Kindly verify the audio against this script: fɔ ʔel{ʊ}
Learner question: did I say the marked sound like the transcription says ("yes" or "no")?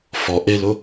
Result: yes